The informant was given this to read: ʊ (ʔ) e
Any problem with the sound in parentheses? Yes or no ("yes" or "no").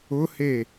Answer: yes